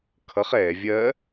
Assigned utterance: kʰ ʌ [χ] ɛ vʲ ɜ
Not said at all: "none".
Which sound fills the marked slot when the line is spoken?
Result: χ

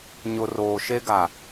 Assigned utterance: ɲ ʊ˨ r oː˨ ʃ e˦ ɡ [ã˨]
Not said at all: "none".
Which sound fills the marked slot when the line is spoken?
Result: a˨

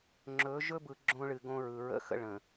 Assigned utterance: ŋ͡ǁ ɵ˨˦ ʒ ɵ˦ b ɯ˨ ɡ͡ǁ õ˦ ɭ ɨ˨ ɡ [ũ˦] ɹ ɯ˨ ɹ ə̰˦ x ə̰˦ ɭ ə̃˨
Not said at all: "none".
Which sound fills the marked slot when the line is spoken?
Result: õ˦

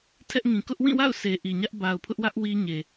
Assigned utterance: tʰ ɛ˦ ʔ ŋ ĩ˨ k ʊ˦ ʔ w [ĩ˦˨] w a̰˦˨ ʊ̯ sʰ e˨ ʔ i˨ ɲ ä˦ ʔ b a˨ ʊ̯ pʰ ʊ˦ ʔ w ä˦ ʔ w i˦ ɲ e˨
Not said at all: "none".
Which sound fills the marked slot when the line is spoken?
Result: ĩ˦˨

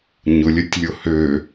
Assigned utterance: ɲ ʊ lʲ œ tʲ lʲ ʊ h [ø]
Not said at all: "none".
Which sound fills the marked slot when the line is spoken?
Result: ø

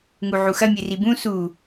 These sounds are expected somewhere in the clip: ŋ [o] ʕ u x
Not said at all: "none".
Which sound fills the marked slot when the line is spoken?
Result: u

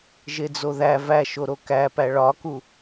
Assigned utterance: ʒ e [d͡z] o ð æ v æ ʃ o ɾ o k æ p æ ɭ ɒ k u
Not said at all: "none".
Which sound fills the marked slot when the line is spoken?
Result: d͡z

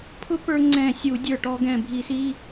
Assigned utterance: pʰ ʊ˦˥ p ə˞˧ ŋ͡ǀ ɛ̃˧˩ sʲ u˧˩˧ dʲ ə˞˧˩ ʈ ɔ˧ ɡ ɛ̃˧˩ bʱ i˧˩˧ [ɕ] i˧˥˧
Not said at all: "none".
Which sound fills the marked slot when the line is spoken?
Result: s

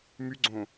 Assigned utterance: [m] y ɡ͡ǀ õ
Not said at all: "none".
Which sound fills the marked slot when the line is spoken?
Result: m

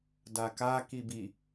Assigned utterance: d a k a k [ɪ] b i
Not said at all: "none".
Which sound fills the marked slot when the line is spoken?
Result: i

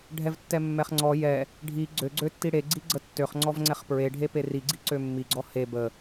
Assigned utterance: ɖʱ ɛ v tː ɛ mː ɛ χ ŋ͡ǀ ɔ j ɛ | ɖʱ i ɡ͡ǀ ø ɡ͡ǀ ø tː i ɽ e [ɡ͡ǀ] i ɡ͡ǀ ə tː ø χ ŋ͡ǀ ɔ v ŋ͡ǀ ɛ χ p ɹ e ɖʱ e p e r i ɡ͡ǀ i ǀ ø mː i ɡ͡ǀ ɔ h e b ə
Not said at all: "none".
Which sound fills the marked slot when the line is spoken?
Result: ɡ͡ǀ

